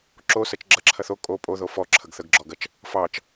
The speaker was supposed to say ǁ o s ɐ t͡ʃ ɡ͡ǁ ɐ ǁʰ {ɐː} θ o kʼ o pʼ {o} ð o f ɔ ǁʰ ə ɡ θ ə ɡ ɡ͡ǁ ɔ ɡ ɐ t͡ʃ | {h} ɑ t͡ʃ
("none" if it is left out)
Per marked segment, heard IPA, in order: ɐ, o, f

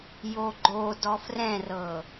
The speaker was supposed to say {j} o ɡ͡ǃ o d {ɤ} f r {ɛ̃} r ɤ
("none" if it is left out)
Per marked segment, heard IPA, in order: j, ɔ, ɛ̃

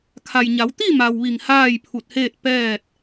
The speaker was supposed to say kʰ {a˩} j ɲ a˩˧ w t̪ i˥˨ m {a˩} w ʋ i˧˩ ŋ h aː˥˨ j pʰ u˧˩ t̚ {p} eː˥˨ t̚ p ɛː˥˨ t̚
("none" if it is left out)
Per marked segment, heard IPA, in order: a˩, a˩, h

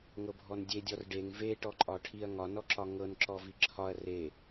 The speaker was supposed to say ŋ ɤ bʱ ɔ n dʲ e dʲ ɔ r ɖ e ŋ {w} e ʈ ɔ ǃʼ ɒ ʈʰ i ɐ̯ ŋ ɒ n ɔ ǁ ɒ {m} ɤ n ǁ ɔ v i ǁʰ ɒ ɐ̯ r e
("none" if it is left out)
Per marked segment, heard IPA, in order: v, ŋ

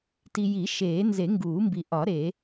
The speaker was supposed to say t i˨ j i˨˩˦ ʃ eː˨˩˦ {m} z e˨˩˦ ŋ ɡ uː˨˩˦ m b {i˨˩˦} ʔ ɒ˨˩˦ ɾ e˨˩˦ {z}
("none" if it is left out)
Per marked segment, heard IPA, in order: n, i˨, none

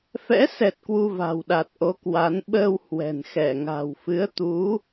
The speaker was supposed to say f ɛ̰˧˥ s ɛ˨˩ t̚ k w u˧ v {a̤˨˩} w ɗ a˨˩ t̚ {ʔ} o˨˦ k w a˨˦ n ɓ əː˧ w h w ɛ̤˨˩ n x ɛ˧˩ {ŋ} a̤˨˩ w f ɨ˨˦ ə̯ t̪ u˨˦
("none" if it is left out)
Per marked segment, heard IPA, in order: a̤˨˩, ʔ, ŋ

